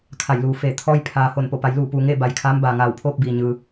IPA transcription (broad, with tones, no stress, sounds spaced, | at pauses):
kʰ a˧˩ j l uː˩˧ f eː˧˩ t̪ʰ ɔː˧ j pʰ aː˩ h o˧˩ n p o˧˩ p a˩˧ j l uː˧˩ p uː˩ ŋ eː˥˨ b a˩ j kʰ aː˧˥ m b aː˩ ŋ aː˧˩ w pʰ oː˥˨ p̚ b iː˩ ɲ ɯː˩